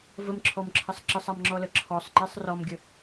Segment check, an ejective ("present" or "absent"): absent